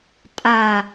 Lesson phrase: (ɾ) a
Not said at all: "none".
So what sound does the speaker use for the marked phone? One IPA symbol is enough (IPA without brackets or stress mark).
tʼ